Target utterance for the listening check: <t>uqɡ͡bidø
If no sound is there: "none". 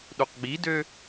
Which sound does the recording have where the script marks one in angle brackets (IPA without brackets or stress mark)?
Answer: ɗ